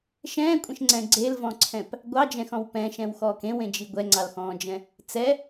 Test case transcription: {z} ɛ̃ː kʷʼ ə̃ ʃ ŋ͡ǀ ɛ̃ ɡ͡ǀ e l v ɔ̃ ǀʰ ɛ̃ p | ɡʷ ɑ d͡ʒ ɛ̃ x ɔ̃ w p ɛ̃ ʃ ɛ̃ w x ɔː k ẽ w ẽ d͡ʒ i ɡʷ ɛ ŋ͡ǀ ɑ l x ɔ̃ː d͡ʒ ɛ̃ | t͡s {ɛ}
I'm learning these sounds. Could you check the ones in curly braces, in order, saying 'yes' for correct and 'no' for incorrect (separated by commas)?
no, yes